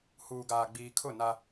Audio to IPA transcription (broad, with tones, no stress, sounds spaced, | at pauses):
h uː˨ ɡ aː˨ ɡ͡b iː˨ kʰ ʊ˦˨ n a˦